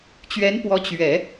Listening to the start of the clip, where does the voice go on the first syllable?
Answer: rising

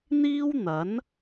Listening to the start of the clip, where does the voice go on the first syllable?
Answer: high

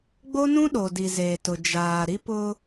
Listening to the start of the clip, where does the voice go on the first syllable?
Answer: high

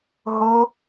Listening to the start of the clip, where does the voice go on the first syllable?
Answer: high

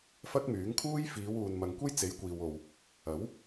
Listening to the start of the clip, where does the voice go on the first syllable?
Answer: high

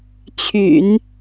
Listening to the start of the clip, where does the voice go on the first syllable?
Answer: low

